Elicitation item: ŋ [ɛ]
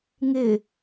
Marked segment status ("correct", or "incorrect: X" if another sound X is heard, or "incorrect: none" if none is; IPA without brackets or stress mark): incorrect: ɪ